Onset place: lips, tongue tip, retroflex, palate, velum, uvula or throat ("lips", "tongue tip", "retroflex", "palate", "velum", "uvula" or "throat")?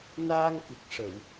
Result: tongue tip